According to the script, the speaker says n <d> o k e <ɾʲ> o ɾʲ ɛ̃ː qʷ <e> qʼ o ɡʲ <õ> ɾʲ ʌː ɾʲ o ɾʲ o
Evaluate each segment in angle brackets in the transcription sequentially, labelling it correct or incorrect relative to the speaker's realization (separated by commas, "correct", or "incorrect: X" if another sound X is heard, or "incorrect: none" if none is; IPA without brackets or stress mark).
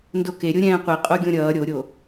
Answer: correct, correct, incorrect: i, correct